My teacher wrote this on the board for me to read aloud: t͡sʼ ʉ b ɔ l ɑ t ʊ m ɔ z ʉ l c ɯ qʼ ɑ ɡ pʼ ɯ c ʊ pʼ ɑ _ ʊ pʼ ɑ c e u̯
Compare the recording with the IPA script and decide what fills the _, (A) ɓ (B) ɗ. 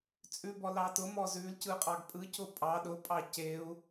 B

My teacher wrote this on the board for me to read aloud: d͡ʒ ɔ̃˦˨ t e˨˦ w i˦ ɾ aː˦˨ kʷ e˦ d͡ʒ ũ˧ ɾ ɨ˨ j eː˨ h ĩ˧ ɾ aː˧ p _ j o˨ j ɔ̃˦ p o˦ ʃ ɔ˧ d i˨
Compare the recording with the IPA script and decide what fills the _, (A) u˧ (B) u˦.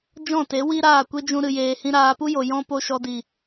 B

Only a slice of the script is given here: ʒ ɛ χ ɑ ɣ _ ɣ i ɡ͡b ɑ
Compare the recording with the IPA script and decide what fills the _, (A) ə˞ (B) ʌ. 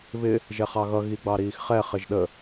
B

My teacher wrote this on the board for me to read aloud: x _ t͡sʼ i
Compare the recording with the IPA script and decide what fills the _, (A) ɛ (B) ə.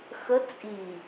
B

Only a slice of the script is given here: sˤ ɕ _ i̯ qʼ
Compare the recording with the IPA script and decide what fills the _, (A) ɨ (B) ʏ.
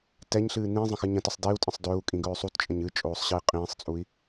A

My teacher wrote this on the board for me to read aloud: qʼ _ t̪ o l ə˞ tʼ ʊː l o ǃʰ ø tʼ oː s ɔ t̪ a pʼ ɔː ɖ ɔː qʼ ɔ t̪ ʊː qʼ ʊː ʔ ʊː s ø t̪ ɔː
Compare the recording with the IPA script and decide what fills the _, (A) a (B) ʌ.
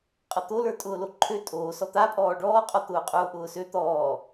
B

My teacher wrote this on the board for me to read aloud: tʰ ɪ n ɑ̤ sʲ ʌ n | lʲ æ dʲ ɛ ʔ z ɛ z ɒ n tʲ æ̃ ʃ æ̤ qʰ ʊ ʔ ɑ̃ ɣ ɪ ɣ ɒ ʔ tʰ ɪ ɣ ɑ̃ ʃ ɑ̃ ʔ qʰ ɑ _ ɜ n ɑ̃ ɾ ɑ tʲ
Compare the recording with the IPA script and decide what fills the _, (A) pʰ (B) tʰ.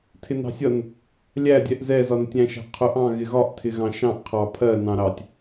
A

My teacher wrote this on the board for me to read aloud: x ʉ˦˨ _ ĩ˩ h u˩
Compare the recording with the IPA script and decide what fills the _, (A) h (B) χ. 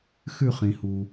B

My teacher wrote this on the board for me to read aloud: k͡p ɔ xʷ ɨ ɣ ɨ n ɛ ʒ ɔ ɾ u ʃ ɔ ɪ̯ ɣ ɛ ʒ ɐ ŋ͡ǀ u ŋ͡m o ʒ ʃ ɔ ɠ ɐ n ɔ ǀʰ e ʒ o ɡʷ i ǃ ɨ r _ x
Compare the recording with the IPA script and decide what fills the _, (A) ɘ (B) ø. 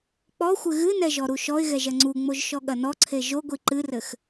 A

